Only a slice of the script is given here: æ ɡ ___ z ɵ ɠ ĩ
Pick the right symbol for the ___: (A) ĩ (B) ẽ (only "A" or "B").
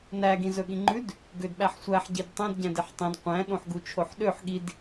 A